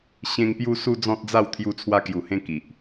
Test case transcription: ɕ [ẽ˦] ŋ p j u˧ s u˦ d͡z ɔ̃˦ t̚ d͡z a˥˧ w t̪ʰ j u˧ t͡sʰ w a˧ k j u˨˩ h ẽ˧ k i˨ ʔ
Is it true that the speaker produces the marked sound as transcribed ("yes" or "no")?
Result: no